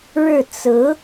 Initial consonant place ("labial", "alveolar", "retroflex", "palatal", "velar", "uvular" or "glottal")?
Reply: retroflex